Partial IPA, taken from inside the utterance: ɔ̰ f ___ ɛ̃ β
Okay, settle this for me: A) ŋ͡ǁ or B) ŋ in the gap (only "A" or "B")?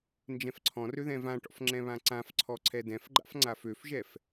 A